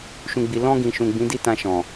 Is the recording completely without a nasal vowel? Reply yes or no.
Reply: no